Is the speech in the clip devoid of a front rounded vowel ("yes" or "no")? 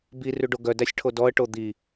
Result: no